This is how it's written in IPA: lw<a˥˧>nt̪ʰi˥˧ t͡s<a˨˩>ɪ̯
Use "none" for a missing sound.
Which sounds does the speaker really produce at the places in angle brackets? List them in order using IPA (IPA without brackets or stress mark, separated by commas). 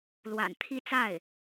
a̰˨˩, a˥˩